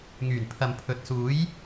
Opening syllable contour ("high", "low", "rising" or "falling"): low